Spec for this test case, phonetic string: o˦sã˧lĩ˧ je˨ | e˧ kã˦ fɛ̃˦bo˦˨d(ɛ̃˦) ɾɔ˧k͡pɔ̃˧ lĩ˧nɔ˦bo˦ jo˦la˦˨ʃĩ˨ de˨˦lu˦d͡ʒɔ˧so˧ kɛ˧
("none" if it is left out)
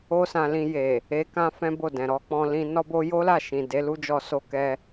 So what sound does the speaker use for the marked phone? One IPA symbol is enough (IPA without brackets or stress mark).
ɛ̃˨